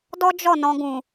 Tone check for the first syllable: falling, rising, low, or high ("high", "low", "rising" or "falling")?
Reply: high